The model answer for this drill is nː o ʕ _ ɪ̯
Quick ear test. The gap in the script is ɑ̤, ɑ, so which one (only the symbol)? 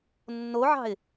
ɑ̤